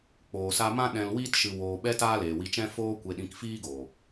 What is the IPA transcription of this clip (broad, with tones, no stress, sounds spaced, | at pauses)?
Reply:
k͡p oː˨ s a˧ m ã˦ ɗ ɛ̃˧ l w iː˦ t ʃ ɨ˨ w oː˨ ɓ ɛ˧ t aː˦ l eː˨ w i˧ t͡ʃ ɛ̃˦ f oː˧ kʷ e˨ ɗ ĩ˨ k f iː˦ ɡ oː˨